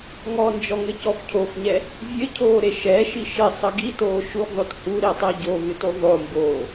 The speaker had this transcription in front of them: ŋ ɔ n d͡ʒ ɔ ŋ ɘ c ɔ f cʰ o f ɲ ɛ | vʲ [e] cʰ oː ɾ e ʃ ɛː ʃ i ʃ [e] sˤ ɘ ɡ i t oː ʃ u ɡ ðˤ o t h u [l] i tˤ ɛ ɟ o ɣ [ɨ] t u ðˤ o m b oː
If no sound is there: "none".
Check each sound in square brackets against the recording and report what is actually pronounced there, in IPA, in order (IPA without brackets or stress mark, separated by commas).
ɘ, ɘ, ɾ, ɨ